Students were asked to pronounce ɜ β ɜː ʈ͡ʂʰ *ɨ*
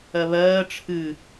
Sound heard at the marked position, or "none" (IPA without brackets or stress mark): ɨ